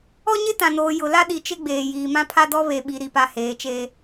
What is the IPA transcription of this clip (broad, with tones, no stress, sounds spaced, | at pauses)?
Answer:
ɔ˦ ɲ ɪ˦ t ã˨ n oː˨ j ʊ˨ l a˦ ɗ i˨ t͡ʃ ɪ˦ ɡ͡b eː˨ j iː˨ m ã˦ pʰ a˦ d ɔ˦ β e˨ ɓ i˨ ɾ i˨ p a˨ h eː˨˦ t͡ʃ eː˦